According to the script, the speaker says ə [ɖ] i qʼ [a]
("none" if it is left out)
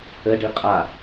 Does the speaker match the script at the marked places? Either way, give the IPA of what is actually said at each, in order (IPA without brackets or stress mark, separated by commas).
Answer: ɖ, a